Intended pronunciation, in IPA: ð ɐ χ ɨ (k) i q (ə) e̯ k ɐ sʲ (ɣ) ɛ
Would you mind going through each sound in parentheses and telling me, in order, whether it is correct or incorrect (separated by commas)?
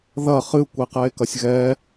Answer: incorrect, incorrect, correct